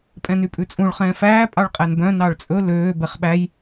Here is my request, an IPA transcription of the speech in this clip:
pʼ ɛ̃ n y pʼ ʉ t͡sʼ ũ ɭ χ ɛ̃ː f æː pʼ ɑ ɭ qʼ æ n b œ̃ n ɑ ɭ t͡sʼ ɵ l øː b ɛ χ ɓ æ j

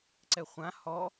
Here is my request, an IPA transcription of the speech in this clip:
ǀ ɛ χʷ ã h ɔ

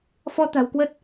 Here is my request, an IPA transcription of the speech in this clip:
f ɔ˧ t̪ a̤˨˩ w k w ə˦˥ t̚

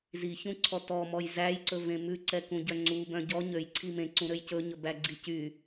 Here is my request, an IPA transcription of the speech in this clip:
z i ç ũ ǀʰ ɔ t ɔ m ɔ j z æ j ǀ ɵ v ẽ m ʉ ǀ ɛ k ũ ɟ œ ŋ͡ǀ u b œ̃ ɟ ɔ ɲ ø j ǀʰ i m ẽ ǀ ũ ɾ ø j c ɵ ɲ ɵ b æ ɡ͡ǀ i c y

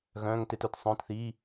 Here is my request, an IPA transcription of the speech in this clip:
ɣ œ̃ː˧˥˧ ŋ t e˧˥˧ t œ˨˩˦ t sˤ œ̃ː˧˥˧ t θ iː˧˥˧

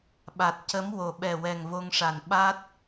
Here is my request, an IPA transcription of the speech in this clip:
ɓ a˨˩ t̚ c ə˧˥ m w o˨˩˨ ɓ ɛ˨˩ w ɛ˨˩ ŋ v o˧ ŋ ʂ a˨˩ n ɓ a˦˥ t̚

